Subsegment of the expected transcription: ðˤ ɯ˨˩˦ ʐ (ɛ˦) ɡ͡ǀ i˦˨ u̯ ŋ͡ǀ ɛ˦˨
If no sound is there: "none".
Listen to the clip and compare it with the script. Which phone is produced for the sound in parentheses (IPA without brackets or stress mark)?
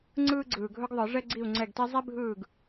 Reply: ɛ˦